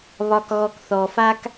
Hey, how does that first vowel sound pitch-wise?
low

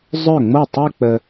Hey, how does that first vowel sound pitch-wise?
falling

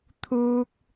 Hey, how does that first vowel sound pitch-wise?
high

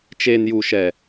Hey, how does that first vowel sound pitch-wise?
low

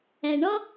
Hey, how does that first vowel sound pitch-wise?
low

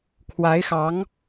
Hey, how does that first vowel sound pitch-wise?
rising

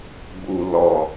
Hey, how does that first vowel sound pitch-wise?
low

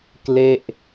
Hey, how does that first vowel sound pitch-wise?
falling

